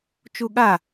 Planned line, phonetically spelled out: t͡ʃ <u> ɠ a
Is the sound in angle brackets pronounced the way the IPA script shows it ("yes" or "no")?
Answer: yes